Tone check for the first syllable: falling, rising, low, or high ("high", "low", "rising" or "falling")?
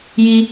high